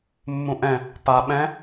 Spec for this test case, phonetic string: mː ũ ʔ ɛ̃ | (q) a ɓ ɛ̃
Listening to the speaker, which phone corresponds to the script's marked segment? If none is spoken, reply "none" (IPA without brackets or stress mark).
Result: p